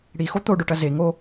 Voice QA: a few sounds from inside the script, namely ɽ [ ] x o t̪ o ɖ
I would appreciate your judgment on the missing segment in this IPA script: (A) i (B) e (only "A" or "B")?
A